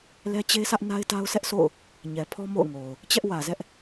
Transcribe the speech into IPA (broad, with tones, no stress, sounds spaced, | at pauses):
l ɛ˦ t͡ɕ e˦ sʰ ä˦ ʔ n a˦ ɪ̯ t a˦ ʊ̯ sʰ ɛ˦ ʔ sʰ o̰˦˨ ʊ̯ | ɲ ɛ˨ pʰ ɔ˦ m o̰˦˨ ʊ̯ ŋ o˨ ʊ̯ | t͡ɕ ɛ˦ ʔ w ä˨ z ɛ˦ ʔ